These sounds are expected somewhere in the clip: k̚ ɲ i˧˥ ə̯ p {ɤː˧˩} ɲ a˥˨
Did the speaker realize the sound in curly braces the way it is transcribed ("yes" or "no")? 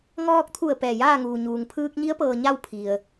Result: no